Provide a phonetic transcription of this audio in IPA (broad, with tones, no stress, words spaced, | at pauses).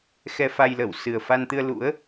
xɛ˧fa˧jlə˧˩w sɨ˨˩ə̯fa˧nt̪ɨ˧ə̯ lṵ˧˥ə̯